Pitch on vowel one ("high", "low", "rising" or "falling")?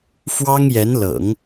high